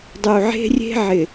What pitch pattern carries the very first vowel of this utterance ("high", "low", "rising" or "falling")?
low